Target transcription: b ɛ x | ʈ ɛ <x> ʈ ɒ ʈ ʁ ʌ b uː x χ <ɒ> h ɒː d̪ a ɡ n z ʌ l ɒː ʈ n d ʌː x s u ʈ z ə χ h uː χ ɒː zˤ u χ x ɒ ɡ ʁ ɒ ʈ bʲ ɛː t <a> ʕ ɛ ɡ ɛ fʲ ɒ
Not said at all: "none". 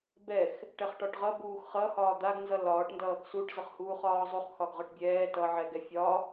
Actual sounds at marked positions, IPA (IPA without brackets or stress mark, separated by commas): χ, ʌ, ʌ